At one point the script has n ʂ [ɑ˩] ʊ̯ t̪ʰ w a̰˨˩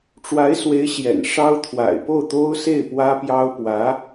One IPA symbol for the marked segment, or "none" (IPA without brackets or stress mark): ɑ˥